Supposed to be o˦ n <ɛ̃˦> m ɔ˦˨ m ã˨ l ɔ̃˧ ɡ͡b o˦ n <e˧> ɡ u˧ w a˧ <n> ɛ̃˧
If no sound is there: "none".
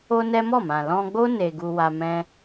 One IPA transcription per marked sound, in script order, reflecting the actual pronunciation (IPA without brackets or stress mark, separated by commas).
ɛ˦, e˧, m